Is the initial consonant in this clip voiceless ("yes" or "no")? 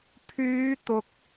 yes